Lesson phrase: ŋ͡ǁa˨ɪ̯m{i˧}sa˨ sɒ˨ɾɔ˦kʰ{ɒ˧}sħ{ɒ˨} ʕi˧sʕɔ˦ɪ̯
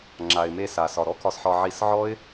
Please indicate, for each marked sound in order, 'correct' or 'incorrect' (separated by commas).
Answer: incorrect, correct, incorrect